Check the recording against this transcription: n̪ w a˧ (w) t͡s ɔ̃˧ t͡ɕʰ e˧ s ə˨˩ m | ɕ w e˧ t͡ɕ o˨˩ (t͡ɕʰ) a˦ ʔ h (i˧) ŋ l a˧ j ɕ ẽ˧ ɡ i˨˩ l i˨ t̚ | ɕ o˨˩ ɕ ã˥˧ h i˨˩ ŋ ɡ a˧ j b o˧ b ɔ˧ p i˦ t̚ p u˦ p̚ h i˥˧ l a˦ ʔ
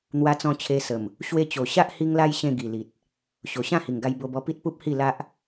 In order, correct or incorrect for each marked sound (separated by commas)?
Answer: incorrect, incorrect, correct